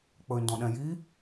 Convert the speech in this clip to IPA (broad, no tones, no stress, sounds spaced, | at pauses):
k͡p ɵ y̯ n d ɔ̃ ɗ ɛ̃ j i